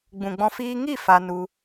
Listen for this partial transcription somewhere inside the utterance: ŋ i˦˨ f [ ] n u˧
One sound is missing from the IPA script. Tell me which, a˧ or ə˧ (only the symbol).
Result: a˧